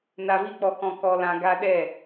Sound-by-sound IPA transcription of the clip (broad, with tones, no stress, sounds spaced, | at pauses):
n a˨ v i˧ k͡p ɔ˨ k ɔ̃˨ k ɔ˨ l ã˨ ɡ a˧ ɗ ɛ˦˨